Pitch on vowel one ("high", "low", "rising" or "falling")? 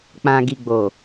low